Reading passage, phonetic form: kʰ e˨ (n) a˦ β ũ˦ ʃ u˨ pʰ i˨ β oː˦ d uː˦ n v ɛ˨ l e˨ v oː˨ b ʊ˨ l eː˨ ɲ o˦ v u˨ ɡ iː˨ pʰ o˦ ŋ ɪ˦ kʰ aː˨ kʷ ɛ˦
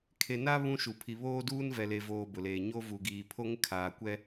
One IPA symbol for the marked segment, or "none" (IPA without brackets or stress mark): n